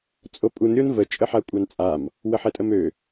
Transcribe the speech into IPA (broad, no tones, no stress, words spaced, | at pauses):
t͡sʼopʼun ɾʲonvə t͡ʃʼəħakʷʼant͡sʼam | wəħɛtʼəmø